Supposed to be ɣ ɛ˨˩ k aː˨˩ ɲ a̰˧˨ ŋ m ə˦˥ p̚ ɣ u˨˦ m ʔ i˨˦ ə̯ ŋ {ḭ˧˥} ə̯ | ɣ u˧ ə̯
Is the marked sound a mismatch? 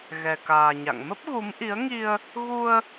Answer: yes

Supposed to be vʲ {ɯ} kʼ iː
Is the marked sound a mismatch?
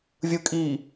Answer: no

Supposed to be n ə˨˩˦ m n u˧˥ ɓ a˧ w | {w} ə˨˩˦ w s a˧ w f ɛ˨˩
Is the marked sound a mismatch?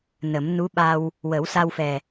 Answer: no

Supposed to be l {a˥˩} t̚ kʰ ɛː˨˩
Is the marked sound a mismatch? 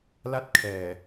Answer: no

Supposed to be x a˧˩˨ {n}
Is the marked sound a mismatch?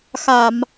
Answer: yes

